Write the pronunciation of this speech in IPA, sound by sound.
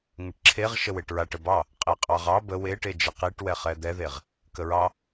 ŋ ə ʈ ǁʰ e ʁ ʃ ə w e ʈ ɹ a ʈ ə b ɑ | qʼ e qʼ ɑ ʁ ɑ b ə w e ʈ e d͡ʒ ə q i ʈ w ɛ χ ɛ d̪ ɛ ð e ʁ | k ə ɹ ɑ

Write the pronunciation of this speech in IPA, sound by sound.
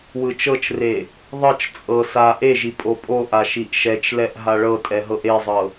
w ɯ t͡ʃ ɤ t͡ʃ r e | ðˤ ɤ t͡ʃ t͡sʼ ɤ s a ʔ e ʒ i pʼ o pʼ o ʔ a ʃ i ʔ ʃ ɛ t͡ʃ l ɛ ʔ ɦ a ɭ ɤ tʼ ɛ ɦ ɤ ʔ e zˤ ɤ

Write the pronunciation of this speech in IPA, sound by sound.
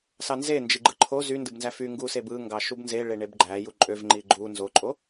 s ɑ n z e n d͡ʒ i ɡ͡ǃ ɯ ǃʰ o z y n d ɯ b n z æ f y ŋ ɡ u s e b ɯ ŋ ɡ ɑ ʃ u b n z e ɭ e ɳ e b ɡ͡ǃ æ j u ǃʼ ø v ŋ͡ǃ i ɡ͡ǃ u n z o ǃʼ o

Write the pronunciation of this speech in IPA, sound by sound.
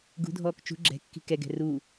ɡ ṳ dʱ ɔː k t͡ʃ ṳ ɡ͡ǁ ɛ̤ kː i̤ k ɛ ɡ ɛ̤ r uː

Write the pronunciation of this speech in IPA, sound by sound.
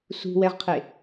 s ṳ w ɛ ʁ qʰ e

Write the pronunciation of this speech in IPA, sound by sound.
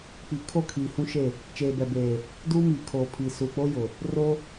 k͡p i˨ kʰ o˦˨ kʰ iː˨ h ũ˦ ʃ e˦˨ | t͡ʃ eː˨ b ɛ˨ b eː˨ | d uː˦ m iː˨ kʰ oː˨ pʰ i˨ s uː˨ k͡p o˦ j ʊ˨ | r o˦

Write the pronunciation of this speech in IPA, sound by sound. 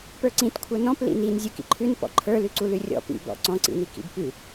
p ə˞ ǀ ĩ t kʷʰ ə˞ n ɔ̃ p l ḭ n i n zʲ u k ḭ ǃʰ ʉ n p ɔ̰ ǃʰ ə˞ l ʉ ǀ u l ʉ rʲ ɔ̰ p ḭ b ɔ̰ ǀ ɔ̃ ǀ ḭ n i k ḭ b p ʉ

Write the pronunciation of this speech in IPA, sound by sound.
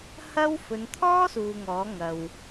h ɐ˥ w f ɵ˨˧ n t̪ʰ ɔː˥ s uː˨ ŋ ɔː˨˥ ŋ ɐ˨ w

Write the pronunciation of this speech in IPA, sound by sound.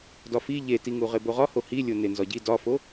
d ɒ f i ʎ e t i ŋ u ʁ e b o ʁ ɒ h o h i lʲ o n e n z ɒ ɟ i d ɒ f o

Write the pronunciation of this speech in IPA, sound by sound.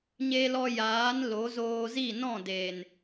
ɲ e˧ l ɔ˧ j aː˨˦ n l o˨˦ z oː˧ z i˦˨ n ɔ̃˦˨ d e˨ n

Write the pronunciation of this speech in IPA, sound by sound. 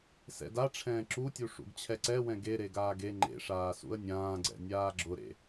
s ɛ̰ d a ʈ͡ʂʰ ɛ̃ː ǁ u tʲ u ʂ ṵ ɡ t͡ɕʰ ɛ ǀ ɛ w ɛ̃ ɡ e ɾ e ɡ aː ɡ e ŋ͡ǃ ḛ ʂ aː s ṵ ə̯ nʲ ãː ɡ͡ǀ ɛ̰ nʲ aː ɡ͡ǁ ʊ ɾ ḛ

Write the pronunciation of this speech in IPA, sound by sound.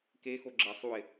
k e x o ɡ͡ǁ ə sˤ u ɪ̯

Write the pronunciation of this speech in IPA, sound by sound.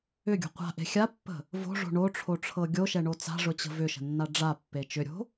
ʏ ɡʲ o̤ qʷ a̤ ʔ e̤ xʲ a pː ə̤ | v o̤ ʐ o̤ ɳ o ʈ͡ʂʰ o ʈ͡ʂʰ ɤ ɡʲ o ʃ ɛ ɳ o t͡s a̤ ʐ ʊ t͡ɕ ə̤ v ʏ ʃ ə̤ nː a ɖ͡ʐ a pː e t͡ʃ ʏ ɾʲ o̤

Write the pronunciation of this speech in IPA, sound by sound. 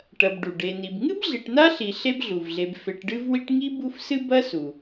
ʈ ɐ˨ b ɖ u˩ ɖ e˨ n i˨ b ŋ ɨ˥ b ɮ i˨ ʈ n a˥ ɬ i˨ ɬ e˦ b ɮ u˩ v ɮ e˨ b f e˨ ʈ ɖ ɨ˦ v w i˦ ʈ ŋ i˥ b u˦ f s ɨ˦ b ɐ˥ s u˩

